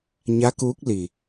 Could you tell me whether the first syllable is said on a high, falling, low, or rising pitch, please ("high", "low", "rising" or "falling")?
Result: rising